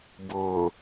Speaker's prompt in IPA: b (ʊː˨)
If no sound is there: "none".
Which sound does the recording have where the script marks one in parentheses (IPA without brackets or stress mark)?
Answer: ʊː˨